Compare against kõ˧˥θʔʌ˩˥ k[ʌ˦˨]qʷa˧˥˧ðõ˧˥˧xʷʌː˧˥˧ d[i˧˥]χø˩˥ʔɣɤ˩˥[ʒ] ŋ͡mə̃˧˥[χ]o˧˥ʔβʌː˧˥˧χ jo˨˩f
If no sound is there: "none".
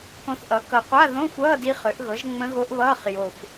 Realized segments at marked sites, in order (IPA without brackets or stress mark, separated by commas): ʌ˨˩, i˧˥, ʒ, ɣ